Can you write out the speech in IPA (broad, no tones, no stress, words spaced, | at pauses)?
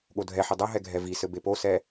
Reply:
ɠodʱɛħɘ dˤɐɦɛ ɡʱɛvisɘ beposɛ